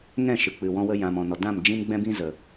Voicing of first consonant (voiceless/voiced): voiced